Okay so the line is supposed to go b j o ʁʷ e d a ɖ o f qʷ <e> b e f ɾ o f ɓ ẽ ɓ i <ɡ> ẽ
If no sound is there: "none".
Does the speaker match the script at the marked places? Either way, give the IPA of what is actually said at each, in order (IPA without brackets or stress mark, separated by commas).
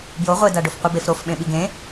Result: ɨ, ɡ